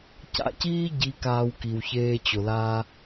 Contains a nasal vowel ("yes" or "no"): no